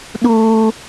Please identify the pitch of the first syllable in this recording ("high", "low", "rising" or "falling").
high